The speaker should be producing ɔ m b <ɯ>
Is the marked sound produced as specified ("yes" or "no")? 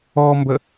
no